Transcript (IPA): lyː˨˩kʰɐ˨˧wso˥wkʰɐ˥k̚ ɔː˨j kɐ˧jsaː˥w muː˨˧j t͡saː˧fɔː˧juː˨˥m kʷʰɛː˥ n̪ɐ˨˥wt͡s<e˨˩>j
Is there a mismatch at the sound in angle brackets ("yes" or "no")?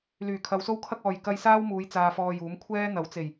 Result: no